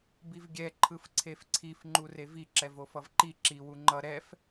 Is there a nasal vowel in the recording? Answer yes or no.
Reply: no